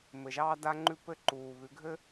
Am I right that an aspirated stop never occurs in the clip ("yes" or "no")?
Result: yes